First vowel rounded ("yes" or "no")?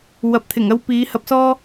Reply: no